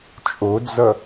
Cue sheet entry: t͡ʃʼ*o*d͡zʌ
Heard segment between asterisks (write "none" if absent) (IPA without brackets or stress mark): o